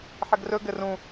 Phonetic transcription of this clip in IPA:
ħɘɡrɵ ɡɘrũ

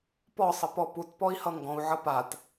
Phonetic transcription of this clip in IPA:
pɔsˤə pɔputpɔi̯ hʌŋɡɔ̃u̯ʕʌ pat

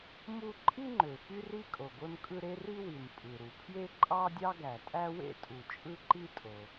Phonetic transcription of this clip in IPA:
mu˥ ǃʼi˥ŋ͡ǃø˩ fy˥ri˥kʼo˩ ɡo˥nkʼɯ˥ ɾe˥ri˥wi˩n pʼɯ˩ɾu˩pʰje˥ ǃʼɑ˥dʲɑ˥ɡæ˩ tʼæ˥wḛ˥tʼu˩ t͡ʃʼɯ˥ǃi˥tʼo˩

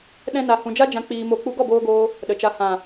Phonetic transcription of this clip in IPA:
ɗɛ̃˧na˨hũ˨ d͡ʒa˦d͡ʒã˧ k͡piː˧mo˧ k͡pu˧ɡɔ˦˨boː˧ɡoː˧ | ɗə˨t͡ʃa˨˦ hã˨

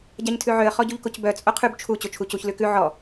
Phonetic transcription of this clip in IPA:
ɟaɲtʰʉʕøə̯ χɔɟuʎkocbœ t͡sʼoqʰʉb t͡ʃʰu t͡ɕot͡ʃʰucuç lʉkʉ ʕɔ

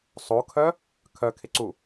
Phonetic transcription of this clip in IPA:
sˤokʰœ | kʰœkʰɪǀu

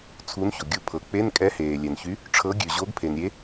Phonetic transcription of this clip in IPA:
t͡sʰu˨˥nço˩ɡʲu˨˥ pʰɤ˩k͡pe˧˥˧n kʼɛ˨˥heː˩lʲɛ˩nçy˨˥ | ʈ͡ʂʰɤ˨˥ ɡʲʉ˩ ʑo˨˥ɡpʰe˩nɾʲe˨˥

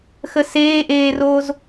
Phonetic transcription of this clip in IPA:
xəseːʔeːroːz

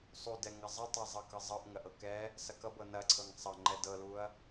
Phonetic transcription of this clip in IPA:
sˤudɛ ŋɐzˤətˤa zˤɤkɤzˤɤʔ ŋɐʔɤkɛ | sɐkʌbɤ nɐǀʰɤŋ sˤʌŋ͡ǃɛ dɤluɐ̯

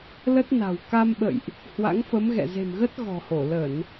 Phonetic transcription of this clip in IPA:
lə˦˥t̚na̤˨˩w ka˧mɓə̰˧˨jʔ | hwa̰˧˥ŋfə˨˦mɣɛ̰˧˨ ze̤˨˩mɣə˦˥t̚ ɣɔ̤˨˩ho˧˩ lə˧˩˨n

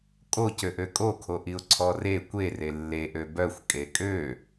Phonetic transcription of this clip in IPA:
kʼocøʔø kʼokʰoʔiʊ̯ ǀʰɔre kʷere lːe ʔøbœxʷ kʼekʼø

